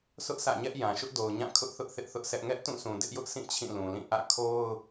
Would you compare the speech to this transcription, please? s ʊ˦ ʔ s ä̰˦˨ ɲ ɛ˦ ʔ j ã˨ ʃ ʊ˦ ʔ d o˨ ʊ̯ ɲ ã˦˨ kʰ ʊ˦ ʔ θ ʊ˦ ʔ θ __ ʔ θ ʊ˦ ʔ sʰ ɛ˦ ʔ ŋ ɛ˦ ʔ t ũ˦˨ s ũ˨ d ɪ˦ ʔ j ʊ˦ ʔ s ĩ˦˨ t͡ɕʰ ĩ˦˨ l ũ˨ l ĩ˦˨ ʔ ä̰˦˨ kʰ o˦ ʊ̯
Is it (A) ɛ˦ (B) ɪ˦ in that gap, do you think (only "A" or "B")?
B